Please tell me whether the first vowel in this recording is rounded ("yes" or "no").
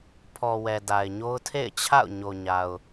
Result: yes